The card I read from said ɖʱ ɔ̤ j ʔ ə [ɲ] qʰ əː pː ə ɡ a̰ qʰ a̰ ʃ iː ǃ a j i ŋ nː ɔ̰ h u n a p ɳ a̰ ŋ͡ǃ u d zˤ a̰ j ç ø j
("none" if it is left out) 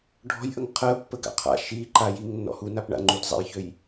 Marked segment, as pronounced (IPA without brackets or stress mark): ŋ